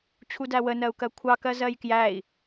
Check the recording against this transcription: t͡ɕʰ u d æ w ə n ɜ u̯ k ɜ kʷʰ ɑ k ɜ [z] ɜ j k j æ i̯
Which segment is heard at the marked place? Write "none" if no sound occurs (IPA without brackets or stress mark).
z